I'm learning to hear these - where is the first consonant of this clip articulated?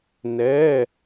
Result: tongue tip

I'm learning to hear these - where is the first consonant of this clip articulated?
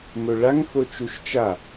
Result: lips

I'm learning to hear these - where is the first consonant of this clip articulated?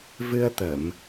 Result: lips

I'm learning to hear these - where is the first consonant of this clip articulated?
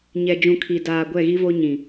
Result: palate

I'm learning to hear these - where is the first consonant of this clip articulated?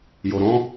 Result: palate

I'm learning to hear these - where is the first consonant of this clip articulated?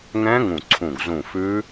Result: velum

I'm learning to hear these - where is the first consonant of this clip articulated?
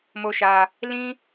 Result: lips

